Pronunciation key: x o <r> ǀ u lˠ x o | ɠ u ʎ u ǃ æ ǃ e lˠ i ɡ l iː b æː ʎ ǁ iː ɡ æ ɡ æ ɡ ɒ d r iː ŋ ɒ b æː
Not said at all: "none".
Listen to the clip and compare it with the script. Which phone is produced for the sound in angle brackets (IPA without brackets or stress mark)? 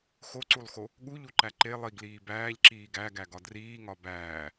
none